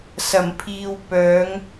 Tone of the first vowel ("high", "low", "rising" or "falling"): low